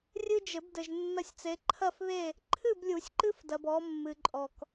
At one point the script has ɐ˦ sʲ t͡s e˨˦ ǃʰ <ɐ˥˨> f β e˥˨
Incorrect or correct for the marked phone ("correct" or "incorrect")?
correct